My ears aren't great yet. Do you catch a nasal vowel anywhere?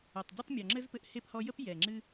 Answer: no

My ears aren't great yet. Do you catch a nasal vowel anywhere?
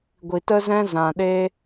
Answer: yes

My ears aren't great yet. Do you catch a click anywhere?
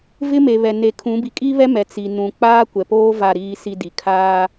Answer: no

